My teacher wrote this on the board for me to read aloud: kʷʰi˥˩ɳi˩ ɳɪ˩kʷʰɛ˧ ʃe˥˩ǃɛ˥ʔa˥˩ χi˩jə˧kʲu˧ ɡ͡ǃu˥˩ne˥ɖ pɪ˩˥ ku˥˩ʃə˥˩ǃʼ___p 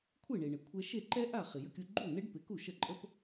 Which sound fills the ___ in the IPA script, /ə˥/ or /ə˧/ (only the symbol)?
ə˥